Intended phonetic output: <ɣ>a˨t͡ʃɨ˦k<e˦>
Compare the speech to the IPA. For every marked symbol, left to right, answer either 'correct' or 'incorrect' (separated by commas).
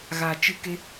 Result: correct, correct